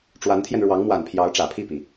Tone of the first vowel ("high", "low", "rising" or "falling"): rising